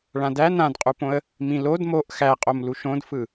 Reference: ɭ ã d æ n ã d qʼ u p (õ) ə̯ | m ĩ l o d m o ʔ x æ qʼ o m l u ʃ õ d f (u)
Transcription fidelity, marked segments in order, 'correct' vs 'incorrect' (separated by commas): correct, incorrect